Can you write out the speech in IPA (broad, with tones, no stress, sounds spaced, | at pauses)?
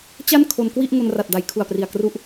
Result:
t͡ɕ a˥˩ n kʰ o˧ n k w i˥˩ ʔ ŋ o˧ n r a˨˩ t̚ d a˩˦ j kʰ u˨˩ a̯ p r i˨˩ a̯ k r u˦˥ ʔ